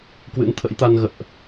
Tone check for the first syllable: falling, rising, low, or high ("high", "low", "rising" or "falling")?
rising